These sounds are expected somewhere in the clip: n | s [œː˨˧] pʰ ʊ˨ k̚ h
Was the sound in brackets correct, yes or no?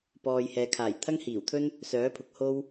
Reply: no